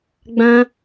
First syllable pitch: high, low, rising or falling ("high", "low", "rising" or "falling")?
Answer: high